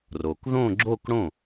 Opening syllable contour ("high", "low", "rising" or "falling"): low